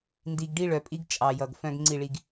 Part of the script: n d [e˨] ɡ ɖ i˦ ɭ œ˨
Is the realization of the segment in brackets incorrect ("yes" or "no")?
yes